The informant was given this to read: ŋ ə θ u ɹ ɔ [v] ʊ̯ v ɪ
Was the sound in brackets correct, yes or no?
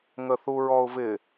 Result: no